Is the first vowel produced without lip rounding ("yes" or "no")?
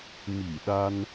yes